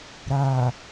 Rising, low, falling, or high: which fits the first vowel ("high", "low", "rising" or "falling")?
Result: low